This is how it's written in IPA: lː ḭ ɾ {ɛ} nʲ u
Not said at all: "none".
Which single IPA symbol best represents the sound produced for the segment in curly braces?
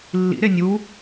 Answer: e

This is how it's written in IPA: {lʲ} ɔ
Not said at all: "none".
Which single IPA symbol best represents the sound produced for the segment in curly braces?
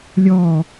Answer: lʲ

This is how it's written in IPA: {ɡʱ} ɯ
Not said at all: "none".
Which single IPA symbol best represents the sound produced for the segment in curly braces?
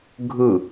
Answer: ɡʱ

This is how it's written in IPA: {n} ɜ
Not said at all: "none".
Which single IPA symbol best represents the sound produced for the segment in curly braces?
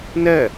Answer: n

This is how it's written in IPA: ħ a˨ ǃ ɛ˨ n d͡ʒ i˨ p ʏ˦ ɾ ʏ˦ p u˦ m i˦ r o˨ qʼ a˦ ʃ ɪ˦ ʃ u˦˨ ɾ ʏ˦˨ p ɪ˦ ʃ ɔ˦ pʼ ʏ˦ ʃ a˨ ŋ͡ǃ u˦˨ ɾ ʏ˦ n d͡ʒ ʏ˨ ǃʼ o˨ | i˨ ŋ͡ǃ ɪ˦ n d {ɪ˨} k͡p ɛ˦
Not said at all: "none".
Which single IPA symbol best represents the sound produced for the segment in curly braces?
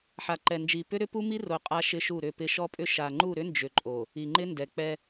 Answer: ɛ˨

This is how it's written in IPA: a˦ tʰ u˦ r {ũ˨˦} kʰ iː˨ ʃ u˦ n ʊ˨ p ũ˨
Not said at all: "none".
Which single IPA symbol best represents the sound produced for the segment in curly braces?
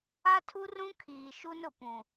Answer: ũ˦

